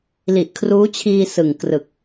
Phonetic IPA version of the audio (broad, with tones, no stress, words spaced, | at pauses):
li˨˩ʔkʰruː˦˥t͡ɕʰiː˧ sɯ˨˩ŋkrɯ˨˩k̚